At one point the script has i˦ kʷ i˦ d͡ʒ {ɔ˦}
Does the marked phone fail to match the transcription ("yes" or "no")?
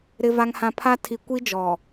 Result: yes